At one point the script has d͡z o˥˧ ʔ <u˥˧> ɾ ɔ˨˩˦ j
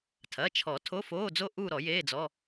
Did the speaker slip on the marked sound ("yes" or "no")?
no